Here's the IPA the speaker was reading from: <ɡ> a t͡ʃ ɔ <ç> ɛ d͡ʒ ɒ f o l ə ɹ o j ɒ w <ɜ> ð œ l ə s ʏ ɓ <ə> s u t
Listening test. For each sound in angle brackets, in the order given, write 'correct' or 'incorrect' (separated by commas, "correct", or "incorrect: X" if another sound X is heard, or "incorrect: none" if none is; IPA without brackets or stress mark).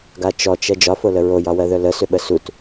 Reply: correct, incorrect: t͡ʃ, correct, correct